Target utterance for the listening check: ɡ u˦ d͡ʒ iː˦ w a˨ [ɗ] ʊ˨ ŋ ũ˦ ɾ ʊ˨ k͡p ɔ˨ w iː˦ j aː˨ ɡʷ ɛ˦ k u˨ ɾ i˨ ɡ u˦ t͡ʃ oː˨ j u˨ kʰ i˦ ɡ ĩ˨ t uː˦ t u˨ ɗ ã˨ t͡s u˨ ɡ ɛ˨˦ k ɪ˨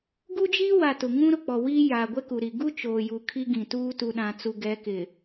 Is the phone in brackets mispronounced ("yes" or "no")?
yes